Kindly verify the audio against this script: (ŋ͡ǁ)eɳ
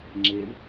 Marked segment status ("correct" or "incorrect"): correct